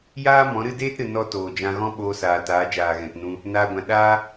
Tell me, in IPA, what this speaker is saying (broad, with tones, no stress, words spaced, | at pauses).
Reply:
jaː˦ mɔ̃˨˦ɾɨ˦ deː˦tɾɨ˨ nɔ˧ toː˨d͡ʒã˧ɣɔ̃˦ ɓoː˧saː˨taː˨˦d͡ʒaː˨ ɣɛ̃˨tnũ˧ | naː˧ɡʷã˨ ɗaː˦